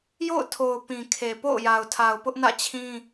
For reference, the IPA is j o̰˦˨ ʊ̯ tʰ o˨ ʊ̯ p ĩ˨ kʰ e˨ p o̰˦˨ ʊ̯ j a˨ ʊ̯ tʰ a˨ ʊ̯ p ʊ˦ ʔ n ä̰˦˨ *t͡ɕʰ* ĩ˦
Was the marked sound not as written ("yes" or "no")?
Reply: no